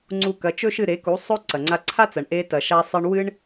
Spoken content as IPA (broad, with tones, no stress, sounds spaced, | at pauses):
ŋ͡ǀ u˧ k ɐ˩˥ t͡ʃ ɵ˥ ʃ ɨ˥˩ ɾ e˩˥ k u˩˥ sˤ ɵ˥ ǀ ɐ˩ ŋ͡ǀ a˧ ǀʰ a˥ t͡s ɐ˩ ɳ ʔ e˧ t ɐ˩ ʃ a˧ sˤ ɨ˧ ɳ w ɨ˥ ɳ